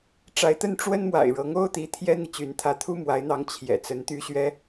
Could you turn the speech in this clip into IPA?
ʈ͡ʂ a˧˥ ɪ̯ t̪ ə˥˩ n ʈ͡ʂ w ə˥ n m w a̰˨˩ ɪ̯ ɻ ɤ˧˥ ŋ o˥ ʊ̯ t̪ i˧˥ t̪ʰ j ɛ˥ n̪ i˨ t͡ɕ y˧˥ n t̪ʰ ä˧˥ t̪ʰ u˥ m w a˧˥ ɪ̯ n̪ ɑ˧˥ ŋ t͡ɕʰ j ɛ̰˨˩ t͡s ə˧˥ n t̪ y˥ ɕ ɥ ɛ˥

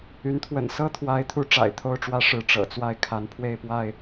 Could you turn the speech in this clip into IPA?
y˨˦ n t̪ʰ w ə̰˨˩ n s ɤ˦ t̪ʰ w a˨˦ ɪ̯ t̪ʰ u˨˦ ʈ͡ʂ a̰˨˩ ɪ̯ t̪ʰ o˥˨ ʊ̯ ʈ͡ʂ w ä˦ ʂ ɻ̩˨˦ ʈ͡ʂ ɤ̰˨˩ t͡s w a˥˨ ɪ̯ kʰ a˨˦ n pʰ w e˥˨ ɪ̯ p w a˥˨ ɪ̯

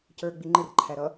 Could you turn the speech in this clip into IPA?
c ə˞ ɡ͡b i ŋ͡ǃ ɪ r ǃʰ æ ɾ ʌ

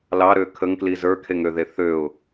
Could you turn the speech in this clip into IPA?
l ɑ ɾ ø kʰ ə ŋ k l i z ə˞ kʰ e ŋ ø ð e θ ø ʊ̯

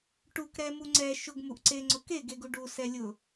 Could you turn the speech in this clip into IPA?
ʈ u k ɾ ɛ m u ŋ͡ǀ ɛ ʃ ʊ ɡ m u ʔ ǀ e ŋ͡ǀ ʊ k e ɡ e ɡ u ɖ u s ɛ lʲ ʊ

